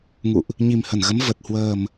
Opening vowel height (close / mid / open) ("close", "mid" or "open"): close